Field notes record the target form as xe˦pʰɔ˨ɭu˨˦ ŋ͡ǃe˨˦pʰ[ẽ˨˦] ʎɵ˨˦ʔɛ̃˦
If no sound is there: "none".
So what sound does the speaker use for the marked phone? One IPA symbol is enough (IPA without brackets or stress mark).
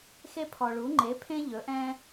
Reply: ẽ˦